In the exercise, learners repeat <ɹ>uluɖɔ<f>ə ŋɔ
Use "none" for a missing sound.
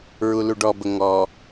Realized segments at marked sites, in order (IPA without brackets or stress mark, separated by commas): ɹ, b